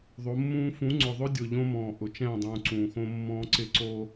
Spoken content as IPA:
ðˤo˨˦mːũː˦ fũ˨˦ŋ͡ǀʊ˨ðˤʊ˦dʲʊ˨ ʎõ˦mɔ̃ː˨ ʔʊ˨t͡ʃɛ̃ː˦˨dˤũː˨ ǀũː˨xõ˦ mːɔ̃ː˦ǀɪ˦ ǀo˦

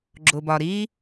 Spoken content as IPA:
ɡ͡ǁʊ˩bɒ˩ɾiː˥

